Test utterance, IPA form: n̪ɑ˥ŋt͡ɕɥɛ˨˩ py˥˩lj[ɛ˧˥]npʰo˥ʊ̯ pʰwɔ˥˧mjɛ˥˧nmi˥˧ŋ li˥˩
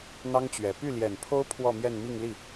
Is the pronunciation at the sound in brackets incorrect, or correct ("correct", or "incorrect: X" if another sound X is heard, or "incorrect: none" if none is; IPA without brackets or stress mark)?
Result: incorrect: ɛ˨˩